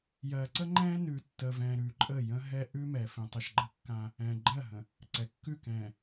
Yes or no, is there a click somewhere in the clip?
yes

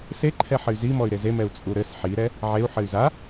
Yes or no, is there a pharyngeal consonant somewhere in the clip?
yes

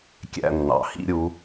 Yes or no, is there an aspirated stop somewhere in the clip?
no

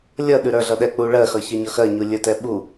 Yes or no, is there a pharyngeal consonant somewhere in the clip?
no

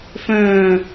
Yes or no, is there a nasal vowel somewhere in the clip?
yes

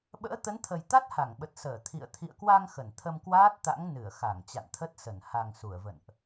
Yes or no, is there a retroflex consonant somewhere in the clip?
no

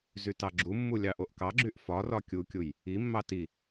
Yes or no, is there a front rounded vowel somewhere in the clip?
yes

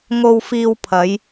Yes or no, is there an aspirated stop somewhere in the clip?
yes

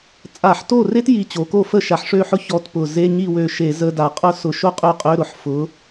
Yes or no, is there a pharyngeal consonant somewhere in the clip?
yes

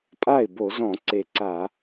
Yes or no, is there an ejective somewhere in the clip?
yes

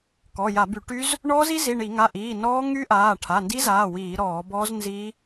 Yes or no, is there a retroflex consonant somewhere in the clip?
yes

